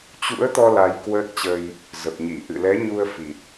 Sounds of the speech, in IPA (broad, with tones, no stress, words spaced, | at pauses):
t͡ɕṵ˧˥ə̯t̪ɔ˧ la˧jkwəː˦˥t̚t͡ɕə˧j | zə˨˩p̚ɲi˧˩ ʔɨ̰˧˨lɛ˨˦ ɲu˧ə̯ fi˨˩t̚